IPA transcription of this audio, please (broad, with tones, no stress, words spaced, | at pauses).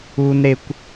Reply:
u˥nɾe˥kʷ